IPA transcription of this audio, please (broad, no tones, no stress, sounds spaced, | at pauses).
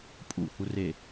pʼ ṵ h u r e